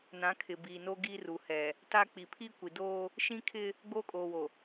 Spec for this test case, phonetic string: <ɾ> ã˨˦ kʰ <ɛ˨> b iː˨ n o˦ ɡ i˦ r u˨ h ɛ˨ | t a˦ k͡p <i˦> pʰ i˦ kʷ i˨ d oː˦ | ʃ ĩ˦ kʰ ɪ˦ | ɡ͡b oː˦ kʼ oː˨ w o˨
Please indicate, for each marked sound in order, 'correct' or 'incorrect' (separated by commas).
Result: incorrect, incorrect, incorrect